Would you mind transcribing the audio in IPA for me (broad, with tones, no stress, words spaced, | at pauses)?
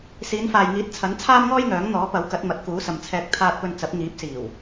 siː˨˧nfaː˨jŋiː˨˥t̚t͡sʰɐ˨˥n t͡sʰaː˥mŋɔː˥jŋœː˨˥ŋ n̪ɔː˨˥ pɐ˨˥wkɐ˨˥t̚ mɐ˨˥t̚kuː˨˥sɐ˨mt͡sʰɛː˧k̚ t̪ʰaː˨t̚pɵ˨n t͡sɐ˨˥p̚ŋiː˨˥p̚siː˨˩w